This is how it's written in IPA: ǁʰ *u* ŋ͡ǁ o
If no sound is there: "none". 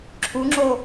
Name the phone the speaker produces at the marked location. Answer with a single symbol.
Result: u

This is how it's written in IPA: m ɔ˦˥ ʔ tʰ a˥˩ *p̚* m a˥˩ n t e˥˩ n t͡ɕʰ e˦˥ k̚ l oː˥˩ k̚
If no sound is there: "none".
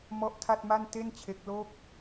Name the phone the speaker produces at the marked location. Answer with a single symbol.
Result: t̚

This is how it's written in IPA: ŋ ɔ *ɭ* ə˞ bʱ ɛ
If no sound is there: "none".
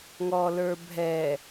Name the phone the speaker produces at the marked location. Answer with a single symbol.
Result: l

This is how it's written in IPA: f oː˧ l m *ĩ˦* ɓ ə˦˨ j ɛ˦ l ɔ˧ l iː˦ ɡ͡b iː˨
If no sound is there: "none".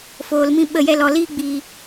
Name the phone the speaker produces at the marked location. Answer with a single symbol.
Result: ĩ˦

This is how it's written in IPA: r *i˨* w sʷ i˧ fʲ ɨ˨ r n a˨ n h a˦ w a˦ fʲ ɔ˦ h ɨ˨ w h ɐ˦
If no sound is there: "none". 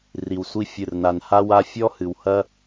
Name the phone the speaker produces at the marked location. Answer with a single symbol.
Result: i˨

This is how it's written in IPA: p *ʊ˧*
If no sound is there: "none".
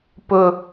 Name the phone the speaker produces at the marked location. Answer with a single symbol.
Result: ʊ˧˩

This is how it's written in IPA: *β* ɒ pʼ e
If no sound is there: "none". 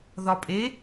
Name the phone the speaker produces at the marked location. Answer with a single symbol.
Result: ð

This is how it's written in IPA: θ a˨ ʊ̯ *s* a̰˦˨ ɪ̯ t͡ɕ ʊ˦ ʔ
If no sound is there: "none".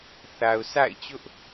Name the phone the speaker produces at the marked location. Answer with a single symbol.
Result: s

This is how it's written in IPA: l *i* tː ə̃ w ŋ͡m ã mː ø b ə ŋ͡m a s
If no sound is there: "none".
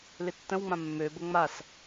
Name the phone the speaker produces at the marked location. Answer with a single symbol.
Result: ɪ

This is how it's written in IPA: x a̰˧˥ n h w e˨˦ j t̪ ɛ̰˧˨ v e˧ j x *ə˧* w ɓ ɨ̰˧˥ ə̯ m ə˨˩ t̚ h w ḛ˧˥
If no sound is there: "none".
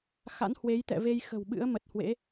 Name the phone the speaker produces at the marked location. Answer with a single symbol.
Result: ə̤˨˩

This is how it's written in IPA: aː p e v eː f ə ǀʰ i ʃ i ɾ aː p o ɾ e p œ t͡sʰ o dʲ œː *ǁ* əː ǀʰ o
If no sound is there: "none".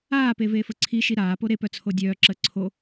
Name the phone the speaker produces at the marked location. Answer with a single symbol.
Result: ǁ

